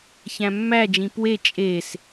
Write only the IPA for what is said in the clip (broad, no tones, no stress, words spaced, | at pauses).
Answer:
çæ̃mːæd͡ʒĩ pwe t͡ʃʼes